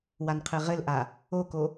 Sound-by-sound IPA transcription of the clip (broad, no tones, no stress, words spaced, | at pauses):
wanqʰɘʁɘlʔa | oko